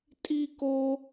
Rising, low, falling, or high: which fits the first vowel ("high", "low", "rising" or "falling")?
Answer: high